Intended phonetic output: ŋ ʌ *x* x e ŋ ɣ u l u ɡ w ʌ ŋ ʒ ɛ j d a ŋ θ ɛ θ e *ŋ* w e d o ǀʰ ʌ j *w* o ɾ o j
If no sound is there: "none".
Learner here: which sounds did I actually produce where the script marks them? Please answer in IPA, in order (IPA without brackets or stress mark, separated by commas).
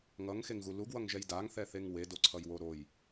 ŋ, ŋ, w